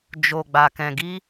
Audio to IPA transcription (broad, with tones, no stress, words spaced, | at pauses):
d͡ʒo˨ɡ͡ba˨kɛ̃˨ɡi˧